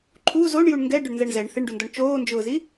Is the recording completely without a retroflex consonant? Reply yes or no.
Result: no